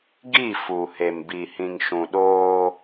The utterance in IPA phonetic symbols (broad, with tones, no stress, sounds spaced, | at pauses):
ɡ i˦˨ f u˨ h e˨ m b i˨ h ĩ˨ ŋ ʃ ũ˨ ɗ oː˦